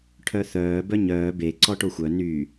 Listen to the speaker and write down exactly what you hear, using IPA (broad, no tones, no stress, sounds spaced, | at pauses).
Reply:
ʈʰ œ θ œː b œ ɲ œː b e ǀ ɔ ʈ o xʷ œ n y